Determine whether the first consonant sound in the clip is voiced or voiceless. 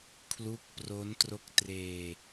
voiceless